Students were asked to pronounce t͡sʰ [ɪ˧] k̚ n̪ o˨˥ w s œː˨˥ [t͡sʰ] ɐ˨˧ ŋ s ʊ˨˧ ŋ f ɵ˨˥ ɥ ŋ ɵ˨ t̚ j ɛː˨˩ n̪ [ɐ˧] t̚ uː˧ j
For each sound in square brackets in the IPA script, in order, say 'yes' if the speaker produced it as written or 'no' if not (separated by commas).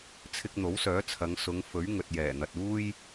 yes, yes, no